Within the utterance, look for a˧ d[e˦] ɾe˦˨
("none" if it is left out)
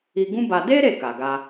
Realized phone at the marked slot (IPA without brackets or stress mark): e˦